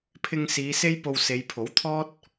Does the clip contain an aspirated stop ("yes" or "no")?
yes